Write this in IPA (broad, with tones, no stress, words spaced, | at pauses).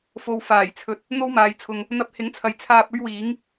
fo˨wfaː˨˩jt͡sʰɵ˨t̚ | n̪o˥wmaː˨˧jt͡sʰʊ˨ŋ | n̪ɐ˧p̚hɪ˨˥ŋt͡sʰɐ˨jt͡sʰaː˧p̚ ɵ˥ɥwiː˨˥ŋ